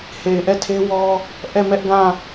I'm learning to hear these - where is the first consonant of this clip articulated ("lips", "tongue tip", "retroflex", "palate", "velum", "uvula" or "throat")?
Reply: throat